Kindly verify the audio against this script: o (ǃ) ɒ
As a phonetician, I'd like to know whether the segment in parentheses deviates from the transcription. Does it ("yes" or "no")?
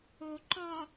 no